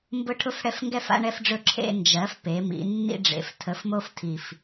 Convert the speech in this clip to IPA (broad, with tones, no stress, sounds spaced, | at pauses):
m b ʊ˦ ʈʰ ʊ˥˨ f ɽ ɛ˦ f ŋ ɡ ɛ˥˨ f a̰˦ ɳ ɛ˦ f ɖ͡ʐ ɵ˦ ǁʰ ḛ˦ n d͡ʒ ɜ˩˥ f p e˩˧ m ḭ˩˧ nː ḭ˦ ɖ͡ʐ ḛ˩˧ f tʰ ə˩˥ f m o˦ f tʰ i˨˩ f